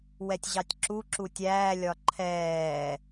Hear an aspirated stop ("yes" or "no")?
yes